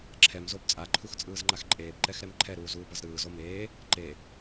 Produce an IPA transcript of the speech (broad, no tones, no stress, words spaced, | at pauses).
ǁʰɛmzob t͡sʼaǃʰuxt͡sʼɯːzŋ͡ǃax ǃʼeːbǃɛxɾɛm ǃʰɛɾuːzuːbʌz ɾɯːzo meː | ǃe